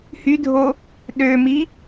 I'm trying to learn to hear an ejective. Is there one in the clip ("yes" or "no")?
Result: no